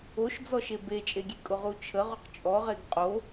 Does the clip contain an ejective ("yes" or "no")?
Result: yes